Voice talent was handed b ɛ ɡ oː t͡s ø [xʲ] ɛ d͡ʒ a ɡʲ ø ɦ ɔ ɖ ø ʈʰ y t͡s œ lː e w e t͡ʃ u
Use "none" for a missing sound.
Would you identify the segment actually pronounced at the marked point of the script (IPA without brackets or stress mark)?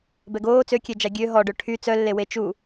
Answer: kʲ